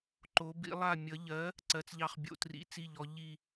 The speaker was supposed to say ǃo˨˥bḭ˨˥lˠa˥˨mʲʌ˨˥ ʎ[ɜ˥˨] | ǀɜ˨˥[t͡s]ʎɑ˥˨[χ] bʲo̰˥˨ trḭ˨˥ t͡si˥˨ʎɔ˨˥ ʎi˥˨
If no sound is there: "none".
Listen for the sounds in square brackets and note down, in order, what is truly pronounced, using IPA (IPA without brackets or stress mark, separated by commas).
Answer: ɜ˨˥, t͡s, χ